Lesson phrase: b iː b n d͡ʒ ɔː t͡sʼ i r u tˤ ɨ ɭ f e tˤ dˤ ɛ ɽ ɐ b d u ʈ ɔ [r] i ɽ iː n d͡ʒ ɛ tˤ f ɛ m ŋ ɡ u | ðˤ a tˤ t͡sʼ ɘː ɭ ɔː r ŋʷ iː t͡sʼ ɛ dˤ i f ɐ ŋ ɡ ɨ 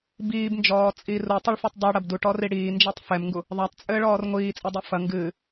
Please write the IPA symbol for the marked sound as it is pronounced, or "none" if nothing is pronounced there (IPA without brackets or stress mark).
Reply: r